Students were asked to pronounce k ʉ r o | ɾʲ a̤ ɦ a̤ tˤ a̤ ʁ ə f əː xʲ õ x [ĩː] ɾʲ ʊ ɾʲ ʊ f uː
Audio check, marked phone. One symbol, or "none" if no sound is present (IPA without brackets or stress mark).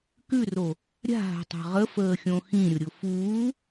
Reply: ĩ